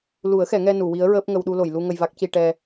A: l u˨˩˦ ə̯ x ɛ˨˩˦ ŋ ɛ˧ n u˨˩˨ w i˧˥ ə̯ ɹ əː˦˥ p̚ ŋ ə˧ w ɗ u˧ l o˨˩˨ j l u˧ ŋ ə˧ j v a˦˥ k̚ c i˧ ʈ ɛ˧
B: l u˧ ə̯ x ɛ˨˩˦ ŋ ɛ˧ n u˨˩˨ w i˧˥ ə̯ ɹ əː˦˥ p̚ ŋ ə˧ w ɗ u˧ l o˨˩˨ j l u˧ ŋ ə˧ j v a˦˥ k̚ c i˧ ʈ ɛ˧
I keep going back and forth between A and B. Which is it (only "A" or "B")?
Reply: A